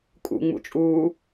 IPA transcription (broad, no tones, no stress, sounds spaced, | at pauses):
kʼ ṵ ŋ͡m ṵ t͡ʃʼ uː